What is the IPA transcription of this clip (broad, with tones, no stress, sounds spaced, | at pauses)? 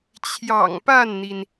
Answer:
t͡ɕʰ j ɑ̰˨˩ ŋ p a˥˩ n n̪ i˩ n